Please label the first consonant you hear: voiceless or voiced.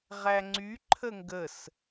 voiced